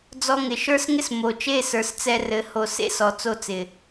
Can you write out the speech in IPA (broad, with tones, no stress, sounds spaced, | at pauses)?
d͡z ɔ˧ ŋ ɪ˨ ʃ ə˞˦ s ŋ ɪ˦ s m o˨ t͡ʃ e˦˨ s ə˞˨ s t͡s ɛ˧ r ɘ˨˦ h o˨ s ḛ˦ s ɔ˨ t͡s o˧ t͡s ɪ˨